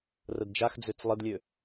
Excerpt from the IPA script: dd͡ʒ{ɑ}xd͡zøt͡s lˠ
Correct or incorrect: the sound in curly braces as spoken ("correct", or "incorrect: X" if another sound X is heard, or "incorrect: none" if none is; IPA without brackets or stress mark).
incorrect: a